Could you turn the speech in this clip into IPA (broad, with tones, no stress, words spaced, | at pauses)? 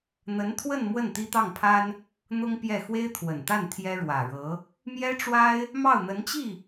n̪ə˧˥nt̪ʰwə˥˧n mwə˥˩nt̪i˥t̪ɑ˥˩ŋpʰa˥n | n̪ʊ˥ŋ pjɛ˥˩ xwe˥ɪ̯t̪ʰwə˨˩nt̪a˥˩n t̪ʰjɛ˥ ɻwä˨˩ ɻɤ˧˥ | mjɛ˥ʈ͡ʂwa˥ɪ̯ | mɑ˥˩ʊ̯n̪ə˧˥nt͡ɕi˥˩